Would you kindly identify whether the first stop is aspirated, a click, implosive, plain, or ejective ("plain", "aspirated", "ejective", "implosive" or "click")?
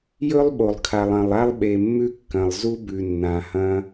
implosive